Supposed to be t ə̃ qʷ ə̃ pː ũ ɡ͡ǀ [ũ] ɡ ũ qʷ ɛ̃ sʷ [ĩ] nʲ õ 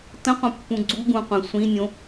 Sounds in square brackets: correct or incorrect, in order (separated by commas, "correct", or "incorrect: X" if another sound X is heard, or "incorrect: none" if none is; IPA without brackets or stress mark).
incorrect: u, correct